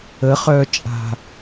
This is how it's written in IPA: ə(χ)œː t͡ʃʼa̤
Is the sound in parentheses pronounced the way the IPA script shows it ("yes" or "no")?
yes